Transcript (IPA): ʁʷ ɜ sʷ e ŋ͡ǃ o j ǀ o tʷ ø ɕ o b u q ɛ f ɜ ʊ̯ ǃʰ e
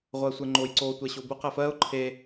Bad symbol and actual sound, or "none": ø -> ɛ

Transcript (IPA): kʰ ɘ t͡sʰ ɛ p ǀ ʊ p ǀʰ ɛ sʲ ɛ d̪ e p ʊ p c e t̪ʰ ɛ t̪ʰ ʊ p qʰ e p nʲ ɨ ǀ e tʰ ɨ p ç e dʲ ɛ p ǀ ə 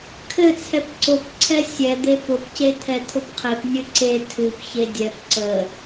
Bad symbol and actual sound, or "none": none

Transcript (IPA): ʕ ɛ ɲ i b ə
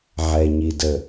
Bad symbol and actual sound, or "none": b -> d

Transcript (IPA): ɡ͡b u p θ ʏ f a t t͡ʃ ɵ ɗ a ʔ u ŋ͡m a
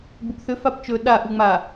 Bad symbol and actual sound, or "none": t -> p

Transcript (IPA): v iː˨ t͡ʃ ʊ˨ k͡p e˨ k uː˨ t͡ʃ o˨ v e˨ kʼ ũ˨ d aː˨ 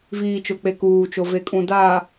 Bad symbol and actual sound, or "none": none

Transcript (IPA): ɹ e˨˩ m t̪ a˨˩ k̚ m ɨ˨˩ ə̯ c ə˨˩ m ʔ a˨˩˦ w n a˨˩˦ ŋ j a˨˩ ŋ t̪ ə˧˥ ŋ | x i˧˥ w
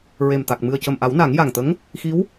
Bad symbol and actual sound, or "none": none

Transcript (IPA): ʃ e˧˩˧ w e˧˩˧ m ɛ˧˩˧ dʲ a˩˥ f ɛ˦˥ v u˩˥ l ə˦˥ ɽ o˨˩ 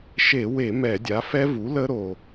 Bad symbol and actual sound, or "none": ɽ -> ɾ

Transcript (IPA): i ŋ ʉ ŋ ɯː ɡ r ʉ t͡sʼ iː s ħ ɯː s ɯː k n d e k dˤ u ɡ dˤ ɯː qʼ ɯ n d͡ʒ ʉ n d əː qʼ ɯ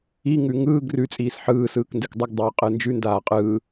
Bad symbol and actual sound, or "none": əː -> aː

